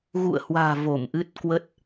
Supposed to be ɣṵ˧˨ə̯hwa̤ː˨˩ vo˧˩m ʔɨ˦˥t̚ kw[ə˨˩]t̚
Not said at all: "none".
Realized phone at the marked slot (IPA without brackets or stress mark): ə˦˥